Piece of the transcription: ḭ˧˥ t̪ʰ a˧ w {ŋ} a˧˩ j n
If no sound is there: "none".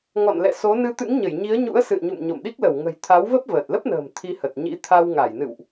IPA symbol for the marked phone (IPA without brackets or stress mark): ŋ